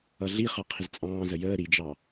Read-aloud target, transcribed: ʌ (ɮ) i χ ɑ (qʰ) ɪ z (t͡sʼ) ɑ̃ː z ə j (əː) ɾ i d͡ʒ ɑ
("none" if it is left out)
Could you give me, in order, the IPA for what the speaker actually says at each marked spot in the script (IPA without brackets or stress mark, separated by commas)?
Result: ɮ, qʰ, t͡sʼ, əː